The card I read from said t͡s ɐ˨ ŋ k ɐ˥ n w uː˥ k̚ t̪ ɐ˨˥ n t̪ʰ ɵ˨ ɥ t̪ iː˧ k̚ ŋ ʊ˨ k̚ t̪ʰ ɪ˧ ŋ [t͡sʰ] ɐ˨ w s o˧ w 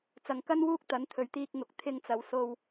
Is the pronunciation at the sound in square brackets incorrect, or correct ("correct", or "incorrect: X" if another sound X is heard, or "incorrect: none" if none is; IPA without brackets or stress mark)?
incorrect: t͡s